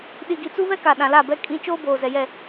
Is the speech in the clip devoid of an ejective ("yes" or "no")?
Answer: no